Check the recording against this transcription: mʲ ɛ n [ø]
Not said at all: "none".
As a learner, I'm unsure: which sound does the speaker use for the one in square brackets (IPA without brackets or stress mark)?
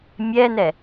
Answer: ɛ